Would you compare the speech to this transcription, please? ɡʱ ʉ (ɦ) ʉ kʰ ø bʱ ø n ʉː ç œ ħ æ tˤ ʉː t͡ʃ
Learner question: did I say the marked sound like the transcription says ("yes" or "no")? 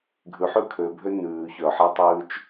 no